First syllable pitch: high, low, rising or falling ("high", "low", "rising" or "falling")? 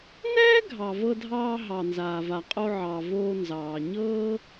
high